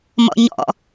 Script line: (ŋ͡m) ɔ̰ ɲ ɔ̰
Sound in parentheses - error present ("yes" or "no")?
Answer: yes